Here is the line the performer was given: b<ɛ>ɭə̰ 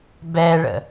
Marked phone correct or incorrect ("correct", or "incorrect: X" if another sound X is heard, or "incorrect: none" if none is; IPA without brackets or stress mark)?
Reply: correct